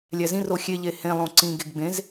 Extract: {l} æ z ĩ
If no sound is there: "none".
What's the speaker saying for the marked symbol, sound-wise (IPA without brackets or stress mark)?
lʲ